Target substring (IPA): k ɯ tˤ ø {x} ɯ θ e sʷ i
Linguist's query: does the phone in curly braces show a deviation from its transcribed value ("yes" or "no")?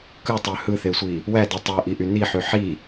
yes